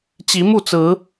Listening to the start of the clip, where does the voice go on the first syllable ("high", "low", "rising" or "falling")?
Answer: rising